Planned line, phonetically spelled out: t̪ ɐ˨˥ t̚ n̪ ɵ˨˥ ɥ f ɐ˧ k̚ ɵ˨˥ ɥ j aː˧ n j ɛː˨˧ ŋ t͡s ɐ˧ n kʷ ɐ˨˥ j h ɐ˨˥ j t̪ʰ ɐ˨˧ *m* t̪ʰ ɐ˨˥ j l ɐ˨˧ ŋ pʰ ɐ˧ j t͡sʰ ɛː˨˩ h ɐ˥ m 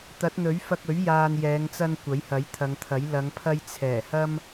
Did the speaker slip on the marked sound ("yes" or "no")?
yes